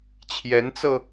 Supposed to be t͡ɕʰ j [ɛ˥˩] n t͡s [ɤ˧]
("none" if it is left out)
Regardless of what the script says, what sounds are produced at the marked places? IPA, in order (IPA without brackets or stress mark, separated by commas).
ɛ˧˥, ɤ˧